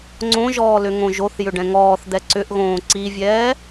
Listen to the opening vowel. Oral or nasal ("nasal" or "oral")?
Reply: nasal